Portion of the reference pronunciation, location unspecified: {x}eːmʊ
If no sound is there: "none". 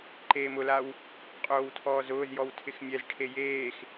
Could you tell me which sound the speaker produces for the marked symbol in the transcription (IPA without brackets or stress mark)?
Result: ǃ